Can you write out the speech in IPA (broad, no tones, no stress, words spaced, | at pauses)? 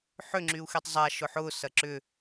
ħʏ ŋ͡ǁyu̯xitˤzˤa ʃʊħʊː sɐǁʏ